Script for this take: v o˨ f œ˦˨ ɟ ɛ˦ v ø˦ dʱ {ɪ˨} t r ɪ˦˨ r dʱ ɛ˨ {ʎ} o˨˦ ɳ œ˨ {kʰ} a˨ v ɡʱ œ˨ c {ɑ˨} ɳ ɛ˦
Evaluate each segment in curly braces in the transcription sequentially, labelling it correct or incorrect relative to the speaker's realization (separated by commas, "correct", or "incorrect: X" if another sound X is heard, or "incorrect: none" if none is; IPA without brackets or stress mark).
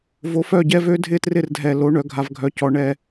incorrect: ɪ˦, incorrect: l, incorrect: ɡʱ, incorrect: ɔ˨